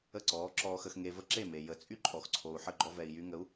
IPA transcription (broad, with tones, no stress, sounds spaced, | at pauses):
ə˥˩ ǀ ɔː˩˥ ǁ ɔː˧ x ə˧ x ŋ e˧ v ə˥ ǁ e˥˩ m e˩ j ə˩˥ t͡sʼ y˥ ǃʼ ɔ˩ x ǀʰ o˩ u̯ ħ ə˥˩ ɡ͡ǃ ɔ˧ v ɛ˩ i̯ j y˧ ŋ ə˩˥ u̯